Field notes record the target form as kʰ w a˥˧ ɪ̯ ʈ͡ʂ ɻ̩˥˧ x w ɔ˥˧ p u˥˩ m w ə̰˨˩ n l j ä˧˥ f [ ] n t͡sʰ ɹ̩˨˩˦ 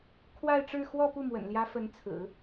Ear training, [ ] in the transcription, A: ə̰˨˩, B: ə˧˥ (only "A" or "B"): B